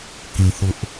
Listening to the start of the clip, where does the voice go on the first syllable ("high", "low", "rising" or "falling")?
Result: low